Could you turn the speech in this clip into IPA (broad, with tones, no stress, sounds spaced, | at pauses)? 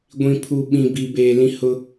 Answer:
ɡʷ ĩ˨ pʰ u˨ ɓ ĩ˨ b i˨ b eː˨ l ĩ˦ h ʊ˦